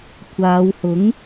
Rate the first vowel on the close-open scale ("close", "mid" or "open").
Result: open